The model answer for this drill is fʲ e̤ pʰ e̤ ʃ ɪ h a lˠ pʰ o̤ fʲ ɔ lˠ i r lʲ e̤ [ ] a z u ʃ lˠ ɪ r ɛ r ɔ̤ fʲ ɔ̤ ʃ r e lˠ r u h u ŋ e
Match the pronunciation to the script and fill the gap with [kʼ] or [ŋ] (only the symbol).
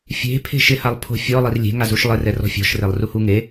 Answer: ŋ